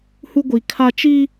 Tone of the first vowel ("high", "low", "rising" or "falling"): high